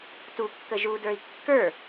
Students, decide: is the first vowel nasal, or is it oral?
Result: oral